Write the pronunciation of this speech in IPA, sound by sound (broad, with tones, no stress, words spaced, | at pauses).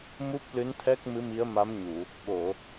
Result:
mu˦˥p̚lɨ˧˥nt̪ʰɛ˦˥k̚ mɨ˧˥mi˧˥ə̯ma˧˥m ɲu˨˩˨ | ɓo˨˩˨